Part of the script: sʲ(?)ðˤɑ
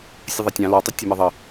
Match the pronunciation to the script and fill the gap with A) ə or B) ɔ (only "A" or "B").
A